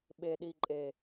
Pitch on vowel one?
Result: low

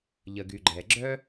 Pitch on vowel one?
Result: low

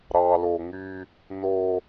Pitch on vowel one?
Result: low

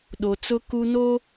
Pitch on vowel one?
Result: low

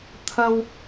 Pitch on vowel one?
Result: high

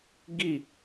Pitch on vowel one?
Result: falling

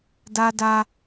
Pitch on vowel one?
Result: high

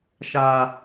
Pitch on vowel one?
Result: low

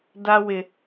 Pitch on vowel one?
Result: high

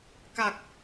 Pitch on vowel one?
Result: low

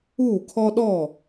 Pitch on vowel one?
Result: falling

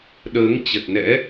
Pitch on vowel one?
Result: rising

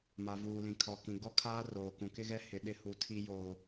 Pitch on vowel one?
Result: low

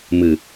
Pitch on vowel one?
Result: low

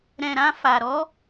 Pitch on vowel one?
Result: low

